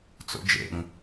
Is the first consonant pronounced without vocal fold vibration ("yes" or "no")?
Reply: yes